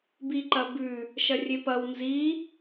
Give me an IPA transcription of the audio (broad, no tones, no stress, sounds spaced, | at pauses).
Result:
b i ǃ ɐ b ʉ | ʃ ɐ rʲ e p ɐ w n z i